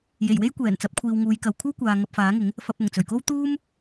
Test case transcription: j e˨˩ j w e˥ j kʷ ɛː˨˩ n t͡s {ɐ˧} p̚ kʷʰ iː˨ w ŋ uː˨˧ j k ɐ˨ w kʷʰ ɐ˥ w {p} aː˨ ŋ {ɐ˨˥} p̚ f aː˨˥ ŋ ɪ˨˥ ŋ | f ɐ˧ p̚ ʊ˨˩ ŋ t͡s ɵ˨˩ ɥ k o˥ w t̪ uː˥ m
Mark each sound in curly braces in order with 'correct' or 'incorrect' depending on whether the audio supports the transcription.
incorrect, incorrect, incorrect

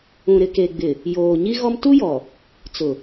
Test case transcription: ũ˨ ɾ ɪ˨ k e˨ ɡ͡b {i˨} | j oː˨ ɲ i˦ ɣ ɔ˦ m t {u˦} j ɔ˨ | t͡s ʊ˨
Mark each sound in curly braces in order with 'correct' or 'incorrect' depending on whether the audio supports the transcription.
incorrect, correct

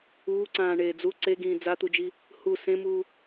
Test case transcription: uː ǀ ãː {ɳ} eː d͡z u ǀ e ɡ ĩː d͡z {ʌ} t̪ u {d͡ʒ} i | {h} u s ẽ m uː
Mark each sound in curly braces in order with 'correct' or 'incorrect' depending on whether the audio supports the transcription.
correct, incorrect, correct, correct

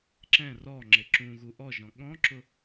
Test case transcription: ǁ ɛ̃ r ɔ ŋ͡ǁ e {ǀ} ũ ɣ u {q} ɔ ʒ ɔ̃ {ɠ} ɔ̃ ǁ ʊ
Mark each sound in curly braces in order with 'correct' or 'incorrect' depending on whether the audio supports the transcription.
incorrect, incorrect, correct

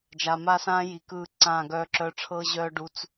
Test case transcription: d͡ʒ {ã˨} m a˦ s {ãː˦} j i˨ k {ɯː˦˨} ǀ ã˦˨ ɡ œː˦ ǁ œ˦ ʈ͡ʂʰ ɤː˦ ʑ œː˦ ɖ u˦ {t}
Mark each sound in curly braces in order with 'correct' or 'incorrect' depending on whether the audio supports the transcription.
incorrect, correct, correct, incorrect

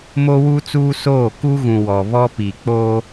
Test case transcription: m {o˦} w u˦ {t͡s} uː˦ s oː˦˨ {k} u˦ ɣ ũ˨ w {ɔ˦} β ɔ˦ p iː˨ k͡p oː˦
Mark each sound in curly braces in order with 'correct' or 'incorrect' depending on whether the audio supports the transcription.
correct, correct, correct, incorrect

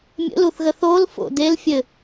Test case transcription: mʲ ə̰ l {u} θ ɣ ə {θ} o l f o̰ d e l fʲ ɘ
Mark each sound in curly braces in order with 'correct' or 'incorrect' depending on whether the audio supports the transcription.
correct, correct

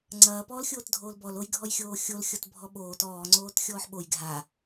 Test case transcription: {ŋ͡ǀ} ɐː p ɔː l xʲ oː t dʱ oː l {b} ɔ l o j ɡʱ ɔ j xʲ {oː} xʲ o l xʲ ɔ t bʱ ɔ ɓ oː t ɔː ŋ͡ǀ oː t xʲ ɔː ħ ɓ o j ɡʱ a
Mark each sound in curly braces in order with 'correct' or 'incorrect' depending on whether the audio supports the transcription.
correct, correct, correct

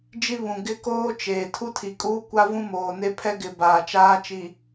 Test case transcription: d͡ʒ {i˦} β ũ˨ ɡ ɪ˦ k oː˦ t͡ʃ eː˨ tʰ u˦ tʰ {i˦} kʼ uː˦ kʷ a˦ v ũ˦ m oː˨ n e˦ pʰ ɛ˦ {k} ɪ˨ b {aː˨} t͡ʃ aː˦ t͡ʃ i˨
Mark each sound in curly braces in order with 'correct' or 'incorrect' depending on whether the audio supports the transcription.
correct, incorrect, incorrect, correct

